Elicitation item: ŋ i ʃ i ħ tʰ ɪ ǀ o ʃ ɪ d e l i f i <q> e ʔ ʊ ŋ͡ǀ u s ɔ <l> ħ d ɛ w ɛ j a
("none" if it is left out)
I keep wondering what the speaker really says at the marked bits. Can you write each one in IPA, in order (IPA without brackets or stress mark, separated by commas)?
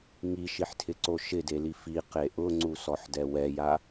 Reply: q, none